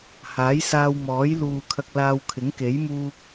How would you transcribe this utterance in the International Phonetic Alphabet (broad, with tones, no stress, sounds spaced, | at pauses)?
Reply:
h aː˨˥ j s aː˧ w m ɔː˨˥ j l uː˨ kʰ ɐ˧ k̚ l aː˧ w kʰ ɪ˨˥ ŋ k e˨˥ j m uː˥ k̚